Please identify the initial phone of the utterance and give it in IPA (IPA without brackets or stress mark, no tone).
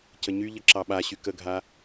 c